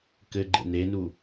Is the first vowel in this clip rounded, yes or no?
no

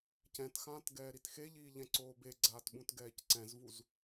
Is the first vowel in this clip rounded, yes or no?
no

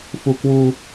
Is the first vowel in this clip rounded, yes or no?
yes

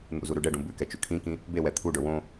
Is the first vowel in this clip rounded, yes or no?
yes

